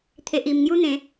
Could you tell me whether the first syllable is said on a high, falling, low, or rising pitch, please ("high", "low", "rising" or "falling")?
low